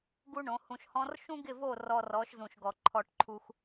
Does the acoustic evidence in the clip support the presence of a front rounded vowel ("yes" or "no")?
no